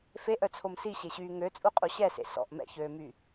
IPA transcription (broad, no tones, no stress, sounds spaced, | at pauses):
f e ʔ œ t͡sʰ o m s i ɕ e ɕ yː ŋ ø t͡sʼ u qʼ u ɕ ɛ s ḛ s ɔ̰ ʔ m ɛ̰ ç øː m y